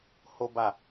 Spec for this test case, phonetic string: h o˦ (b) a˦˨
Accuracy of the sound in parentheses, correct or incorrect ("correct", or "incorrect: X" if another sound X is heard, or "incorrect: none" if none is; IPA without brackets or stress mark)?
correct